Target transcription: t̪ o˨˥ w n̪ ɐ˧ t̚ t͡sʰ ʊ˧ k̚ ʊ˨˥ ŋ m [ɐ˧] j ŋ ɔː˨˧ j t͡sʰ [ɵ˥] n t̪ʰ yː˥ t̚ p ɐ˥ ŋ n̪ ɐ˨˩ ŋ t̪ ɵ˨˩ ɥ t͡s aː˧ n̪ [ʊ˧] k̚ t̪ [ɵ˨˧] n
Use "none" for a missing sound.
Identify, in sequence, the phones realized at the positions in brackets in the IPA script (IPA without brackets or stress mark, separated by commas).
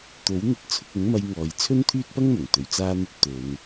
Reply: ɐ˧, ɵ˥, ʊ˧, ɵ˨˧